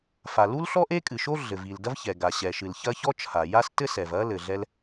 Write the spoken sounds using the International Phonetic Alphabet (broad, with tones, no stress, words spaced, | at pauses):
fa˩lu˥l ɬɔ˥ʔe˥kʼɨ˩ʃo˥ ɮɘ˩vi˩ldɐ˥v çɛ˩ɡa˩ ɕɛ˩ʃɨ˩lçɐ˥ çɔ˥t͡ʃʰa˩ja˥s tɘ˥ sɛ˩vɐ˥ lɘ˩ɮɛ˥l